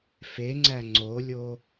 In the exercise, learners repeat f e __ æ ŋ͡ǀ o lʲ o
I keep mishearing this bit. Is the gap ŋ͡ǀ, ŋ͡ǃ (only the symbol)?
ŋ͡ǀ